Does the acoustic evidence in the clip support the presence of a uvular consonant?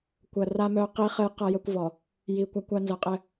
yes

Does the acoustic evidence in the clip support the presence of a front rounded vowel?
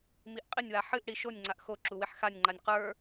no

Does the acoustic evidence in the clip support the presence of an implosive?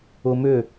no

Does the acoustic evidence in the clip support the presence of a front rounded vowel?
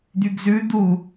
yes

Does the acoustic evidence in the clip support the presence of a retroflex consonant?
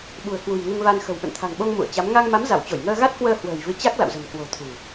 no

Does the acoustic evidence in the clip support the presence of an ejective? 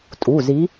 yes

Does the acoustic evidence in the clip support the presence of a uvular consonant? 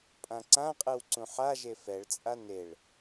yes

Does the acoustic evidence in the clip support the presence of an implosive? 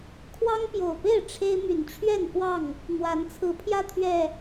no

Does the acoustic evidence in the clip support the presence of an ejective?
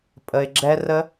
yes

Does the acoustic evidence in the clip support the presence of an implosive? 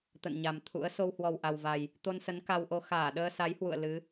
yes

